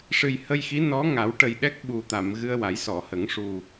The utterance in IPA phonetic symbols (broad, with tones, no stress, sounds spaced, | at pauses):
ʂ ɨ˨˩ j h ə˧ j x i˧˥ n ɔ˧˥ ŋ a˨˩˦ w ʈ ə˨˩ j ɗ ɛ˦˥ k̚ ɓ u˨˩ t̪ a˨˩˨ m ɣ ɨ˧ ə̯ w a˨˩˦ j s ɔ˨˩˨ h ə˨˩˦ ŋ ʂ u˨˩